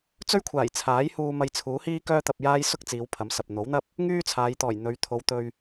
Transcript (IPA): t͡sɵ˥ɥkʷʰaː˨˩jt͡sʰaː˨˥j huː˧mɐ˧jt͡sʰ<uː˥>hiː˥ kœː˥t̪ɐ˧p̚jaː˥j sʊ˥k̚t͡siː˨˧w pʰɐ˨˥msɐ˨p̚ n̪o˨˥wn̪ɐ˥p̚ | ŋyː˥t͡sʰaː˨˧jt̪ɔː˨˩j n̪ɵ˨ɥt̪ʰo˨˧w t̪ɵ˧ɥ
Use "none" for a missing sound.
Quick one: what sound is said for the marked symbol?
uː˨˥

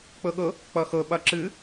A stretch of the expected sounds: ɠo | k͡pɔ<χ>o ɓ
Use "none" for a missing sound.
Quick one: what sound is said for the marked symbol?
x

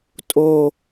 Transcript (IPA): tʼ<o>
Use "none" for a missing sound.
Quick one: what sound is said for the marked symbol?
o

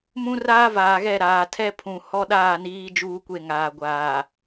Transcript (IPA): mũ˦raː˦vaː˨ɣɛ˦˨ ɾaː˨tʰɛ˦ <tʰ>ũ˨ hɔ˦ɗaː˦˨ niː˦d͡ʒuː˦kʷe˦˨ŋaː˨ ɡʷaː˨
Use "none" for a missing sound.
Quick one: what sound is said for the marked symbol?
pʰ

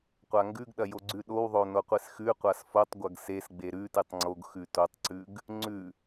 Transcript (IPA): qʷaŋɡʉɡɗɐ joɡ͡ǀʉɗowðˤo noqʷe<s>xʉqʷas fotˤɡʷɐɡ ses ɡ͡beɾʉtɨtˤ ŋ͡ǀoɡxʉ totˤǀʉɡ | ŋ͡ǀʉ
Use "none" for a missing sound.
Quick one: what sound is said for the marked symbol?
s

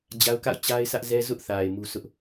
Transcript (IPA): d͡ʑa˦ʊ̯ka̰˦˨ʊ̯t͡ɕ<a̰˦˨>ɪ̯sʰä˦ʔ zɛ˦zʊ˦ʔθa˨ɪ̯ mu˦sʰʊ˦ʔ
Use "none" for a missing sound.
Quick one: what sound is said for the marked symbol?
a˦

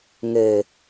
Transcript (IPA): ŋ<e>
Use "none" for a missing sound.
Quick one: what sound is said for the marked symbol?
e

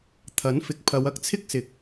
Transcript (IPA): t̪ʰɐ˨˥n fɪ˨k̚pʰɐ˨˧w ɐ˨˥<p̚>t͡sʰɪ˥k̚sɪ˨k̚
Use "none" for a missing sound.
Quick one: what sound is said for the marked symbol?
k̚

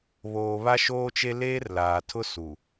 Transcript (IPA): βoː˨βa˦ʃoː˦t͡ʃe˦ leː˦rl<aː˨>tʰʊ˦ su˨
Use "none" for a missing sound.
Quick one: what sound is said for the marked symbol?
aː˨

